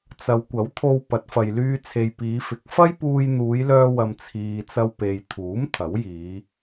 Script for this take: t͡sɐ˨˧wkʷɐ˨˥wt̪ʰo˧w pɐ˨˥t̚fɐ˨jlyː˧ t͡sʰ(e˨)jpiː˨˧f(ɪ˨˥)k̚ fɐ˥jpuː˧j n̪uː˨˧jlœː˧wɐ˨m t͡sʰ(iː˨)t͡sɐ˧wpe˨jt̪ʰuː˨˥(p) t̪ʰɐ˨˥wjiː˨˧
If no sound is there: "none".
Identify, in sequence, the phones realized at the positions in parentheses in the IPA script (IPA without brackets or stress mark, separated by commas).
e˨, ɪ˨˥, iː˨, m